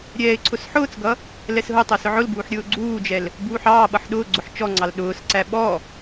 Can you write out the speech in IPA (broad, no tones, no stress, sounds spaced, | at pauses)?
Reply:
ɾʲ ɛː ɪ̯ ǀʰ ʊ s ħ ʊː t͡s ɡ ʌ | l ɛ s ɦ ʊ tˤ ʌ s ʊ ʕ ʊ l b uː ħ ɾʲ ʊː ɡ͡ǀ uː d͡ʒ ɛ l | b uː ħ ɑː ɓ ʌ ħ ɗ ʊː ɡ͡ǀ ʊ ħ t͡ʃ ɔ ŋ͡ǀ ɑ l ɗ ʊː s ǀ æ ɓ ɔ